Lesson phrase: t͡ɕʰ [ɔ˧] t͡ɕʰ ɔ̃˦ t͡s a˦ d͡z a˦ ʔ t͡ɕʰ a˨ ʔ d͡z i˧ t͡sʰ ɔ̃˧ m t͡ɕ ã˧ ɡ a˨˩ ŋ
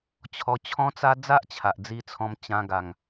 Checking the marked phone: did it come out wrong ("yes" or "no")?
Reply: no